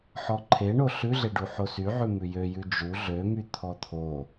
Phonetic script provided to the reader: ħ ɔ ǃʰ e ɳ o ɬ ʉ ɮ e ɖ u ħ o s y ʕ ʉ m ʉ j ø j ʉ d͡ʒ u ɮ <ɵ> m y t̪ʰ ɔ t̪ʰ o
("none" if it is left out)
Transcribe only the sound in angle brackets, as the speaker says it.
ø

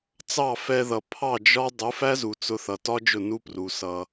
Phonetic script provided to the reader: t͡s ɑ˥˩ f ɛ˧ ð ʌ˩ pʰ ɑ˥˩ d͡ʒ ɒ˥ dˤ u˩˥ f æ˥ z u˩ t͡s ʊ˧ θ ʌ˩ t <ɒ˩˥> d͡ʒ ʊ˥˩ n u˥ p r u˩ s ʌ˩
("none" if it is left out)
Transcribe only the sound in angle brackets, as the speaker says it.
ɒ˥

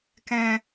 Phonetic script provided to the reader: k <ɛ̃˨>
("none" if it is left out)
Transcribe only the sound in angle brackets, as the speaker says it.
ɛ̃˨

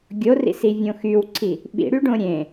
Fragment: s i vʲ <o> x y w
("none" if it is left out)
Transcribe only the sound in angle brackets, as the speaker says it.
õ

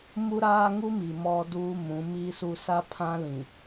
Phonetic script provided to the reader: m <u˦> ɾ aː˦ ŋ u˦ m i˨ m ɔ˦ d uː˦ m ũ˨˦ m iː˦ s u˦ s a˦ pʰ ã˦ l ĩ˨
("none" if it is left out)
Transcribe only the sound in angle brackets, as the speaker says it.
u˦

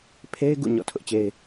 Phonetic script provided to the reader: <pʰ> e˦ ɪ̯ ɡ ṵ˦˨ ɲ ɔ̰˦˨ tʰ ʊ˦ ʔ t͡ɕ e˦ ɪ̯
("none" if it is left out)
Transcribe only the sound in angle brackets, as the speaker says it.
pʰ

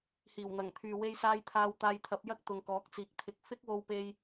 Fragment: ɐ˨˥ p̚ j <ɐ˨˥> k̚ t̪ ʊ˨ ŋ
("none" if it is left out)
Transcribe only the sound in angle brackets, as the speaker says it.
ɐ˥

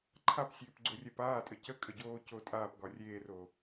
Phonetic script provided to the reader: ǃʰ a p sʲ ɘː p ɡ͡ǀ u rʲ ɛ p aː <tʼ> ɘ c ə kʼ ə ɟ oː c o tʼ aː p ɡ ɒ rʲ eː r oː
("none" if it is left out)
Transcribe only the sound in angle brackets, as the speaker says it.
tʼ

